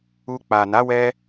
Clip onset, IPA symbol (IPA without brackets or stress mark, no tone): u